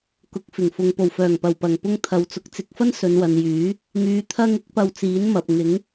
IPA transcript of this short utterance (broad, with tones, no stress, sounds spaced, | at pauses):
k ʊ˨˥ k̚ f ɪ˨˩ ŋ f ʊ˨ ŋ p o˨˩ w f œː˨˩ ŋ p ɐ˨˩ w p ɐ˨˩ ŋ p ʊ˥ ŋ t̪ʰ ɐ˨˧ w t͡s ʊ˧ k̚ t͡s ɪ˨˥ k̚ f ɐ˥ n s ɵ˨˧ n w ɐ˨ n j yː˨˥ | ŋ yː˨ t̪ʰ ɐ˧ ŋ ɪ˨˥ k̚ p ɐ˧ w t͡s iː˨˥ n m ɐ˧ p̚ ŋ ɪ˨˥ ŋ